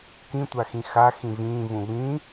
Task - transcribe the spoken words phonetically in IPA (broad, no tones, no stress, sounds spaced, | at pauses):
k ĩ tʷ a x ĩ x a x ĩ v ĩː v ũ β ĩ